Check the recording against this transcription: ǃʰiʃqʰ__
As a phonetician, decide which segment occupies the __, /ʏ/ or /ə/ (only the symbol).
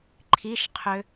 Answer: ʏ